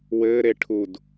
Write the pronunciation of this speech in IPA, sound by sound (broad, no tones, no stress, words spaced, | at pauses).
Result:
wɘːɾe ʈʰud